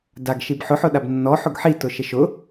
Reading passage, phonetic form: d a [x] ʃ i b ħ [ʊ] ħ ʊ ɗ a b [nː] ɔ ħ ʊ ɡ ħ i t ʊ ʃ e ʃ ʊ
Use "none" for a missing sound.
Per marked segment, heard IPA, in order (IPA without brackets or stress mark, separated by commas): ɡ, ʊ, nː